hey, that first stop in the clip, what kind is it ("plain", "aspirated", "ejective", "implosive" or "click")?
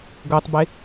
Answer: plain